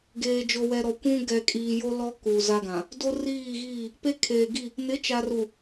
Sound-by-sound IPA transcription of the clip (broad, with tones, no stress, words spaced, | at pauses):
ɡeː˨d͡ʒo˨wɛ˨ ɾɔ˨kʷũ˦ ɡɛ˨kʼiː˨jo˦lɔ˦ ku˨za˦ɡã˨ | do˦riː˦˨ɣiː˦˨ | pe˦kʰeː˨ ɡi˦˨ | nɪ˨˦t͡ʃa˨ru˨